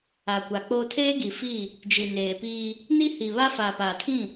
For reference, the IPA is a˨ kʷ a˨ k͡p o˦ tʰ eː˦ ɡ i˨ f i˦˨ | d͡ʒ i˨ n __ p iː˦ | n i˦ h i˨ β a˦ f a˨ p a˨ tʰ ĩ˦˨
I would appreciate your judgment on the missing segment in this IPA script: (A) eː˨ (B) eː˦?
A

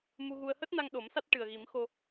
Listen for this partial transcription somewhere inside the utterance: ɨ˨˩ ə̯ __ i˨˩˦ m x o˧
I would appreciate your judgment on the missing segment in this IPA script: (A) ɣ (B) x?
A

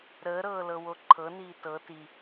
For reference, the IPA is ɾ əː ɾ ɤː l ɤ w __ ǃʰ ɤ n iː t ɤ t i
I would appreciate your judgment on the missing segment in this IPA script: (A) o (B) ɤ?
A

